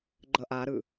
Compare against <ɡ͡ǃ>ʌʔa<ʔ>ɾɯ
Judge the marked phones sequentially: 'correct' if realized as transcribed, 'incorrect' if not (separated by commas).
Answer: correct, incorrect